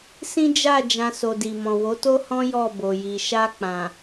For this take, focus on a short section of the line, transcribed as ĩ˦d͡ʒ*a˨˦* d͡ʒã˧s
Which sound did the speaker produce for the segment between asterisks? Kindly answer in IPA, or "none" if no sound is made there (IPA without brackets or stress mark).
a˦˨